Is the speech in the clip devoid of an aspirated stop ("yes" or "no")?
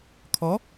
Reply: no